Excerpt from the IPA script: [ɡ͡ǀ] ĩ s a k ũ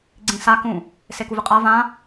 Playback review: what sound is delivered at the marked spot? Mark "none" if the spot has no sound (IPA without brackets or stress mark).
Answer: ɡ͡ǀ